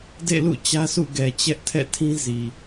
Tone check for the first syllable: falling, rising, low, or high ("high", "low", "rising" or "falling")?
falling